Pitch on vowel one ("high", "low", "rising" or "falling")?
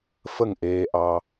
falling